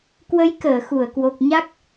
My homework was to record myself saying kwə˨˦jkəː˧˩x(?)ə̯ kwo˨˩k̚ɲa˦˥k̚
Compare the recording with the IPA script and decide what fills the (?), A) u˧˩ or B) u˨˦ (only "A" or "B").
A